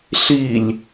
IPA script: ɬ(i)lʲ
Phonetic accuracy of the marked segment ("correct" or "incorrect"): correct